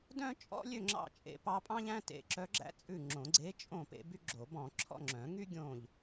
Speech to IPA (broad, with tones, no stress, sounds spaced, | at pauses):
d œ̃˥ t͡ʃʼ ɔ̰˥ lʲ ø˥˨ ŋ͡ǁ ɑ̰˥˨ t͡ʃʼ ḛ˥ p ɑ˥ pʼ ɑ̃˥ ʎ æ̃˥ t ḛ˧˥ ǁ œ˧˥ ɡ͡ǁ æ̰˥ t͡sʼ ʉ˥˨ ŋ͡ǁ õ˨˩˦ ɡ͡ǀ e˧˥ t͡ʃʼ õ˥˨ p ḛ˥ b y˥ ɡ͡ǁ o˨˩˦ b ɔ̃˨˩˦ ǁʰ ɔ̰˥˨ ŋ͡ǁ œ̃˨˩˦ ŋ y˥ ɡʲ õ˥˨ ʎ